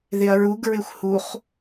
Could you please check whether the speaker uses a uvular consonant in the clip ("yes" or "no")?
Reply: yes